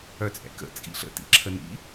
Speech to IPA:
œ t͡sʼ ɛ̰ k ə̰ t͡sʼ ḭ ɬ ə̰ t ḭ ǁʰ ə n ḭ

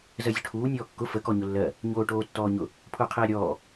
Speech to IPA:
z ɜ zʲ ʊ ʈʰ uː nʲ ɔː kː ʊ f ə k ɔ ɲ ʊ lː ɜ | ɲ oː ʈ oː tː ɔː ɲ ʊ | pʰ ʊː qʰ eː ɾʲ ɔː

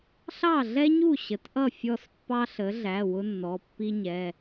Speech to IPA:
ɬ ɑ˥˩ ɮ ɛ˥ ɲ u˥˩ ɕ ə˩˥ t ʔ ʌ˥˩ fʲ ɔ˥˩ s pː ɑ˥ ɬ ə˩˥ ɮ æ˩˧˩ w ʊ˥ nː ɔ˩˧˩ pː i˥ ɲ ɛ˩˧˩

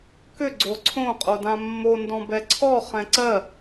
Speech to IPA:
k ʏ ɡ͡ǀ o ǀʰ õ qʼ o d ã mː o n d ɔ̃ b ɛ ǀʰ ɔ χ ɛ̃ ǀ ɜ

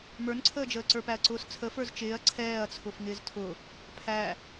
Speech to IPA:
m ə˞ n ǀʰ əː d͡ʒ əː ǀ ə˞ p æ ɐ̯ ǀ ʊː s t͡sʰ ə f ə˞ z t͡ʃ ɪː ɐ̯ ǀʰ ɛː ɐ̯ t͡sʰ ʊ f ŋ ɪː z tʰ ʊ | pʰ æ

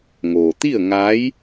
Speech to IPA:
ŋ oː˩ t̪ i˥˨ ə̯ ŋ a˧˥ j

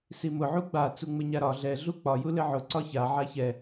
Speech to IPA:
s i m ʊ ʕ u ɡ͡b a t͡s u ŋ͡m ɘ ɲ a ɾ ɒ ɮ ɛ ɮ u k͡p ɒ j u l ɘ ʕ ʊ ǀ ɒ ç a ʕ a ç ɛ

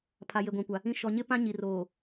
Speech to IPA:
pʰ a˨ j e˨ ɡʷ ã˨ kʷ a˨ | ĩ˨ ʃ ɔ˨ ɲ ɪ˦ p ã˦ ɲ i˨ r oː˨

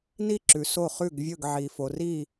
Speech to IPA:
n i˦˨ ǁ ʉ˨ s o˦˨ χ ʉ˦˨ ɡ vʲ ɵ˦˨ ɡ ʕ i˨ f o˨ r i˦˨

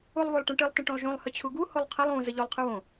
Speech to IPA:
u lˠ v o lˠ ʈ ũ ʈ ɨ lˠ t ə̃ ʈ ũ lˠ ʒ ũ lˠ h ə t͡ɕʰ u ɡ u h o lˠ qʰ ə lˠ ũ z ə ʎ o lˠ qʰ ɨ w õ

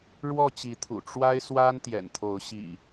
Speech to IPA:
ɻ w ɔ˥˨ t͡ɕ i˨˦ t̪ʰ ṵ˨˩ ʈ͡ʂ w a˦ ɪ̯ s w a˦ n t̪ j ɛ̰˨˩ n t̪ʰ o˨˦ ʊ̯ ɕ ḭ˨˩

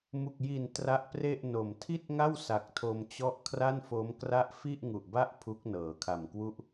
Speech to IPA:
m u˨˩ k̚ j i˨˩ n t r a˦˥ ʔ p r e˥˩ ʔ n o˨˩ m tʰ i˥˩ t̚ ŋ a˥˩ w s a˨˩ k̚ tʰ o˧ m t͡ɕ ɔ˥˩ ʔ kʰ r a˥˩ n f o˦˥ m k r a˥˩ ʔ f i˥˩ ʔ ŋ u˨˩ ʔ b a˥˩ ʔ pʰ u˦˥ k̚ n ɤː˩˦ kʰ a˨˩ m k w u˥˩ ʔ

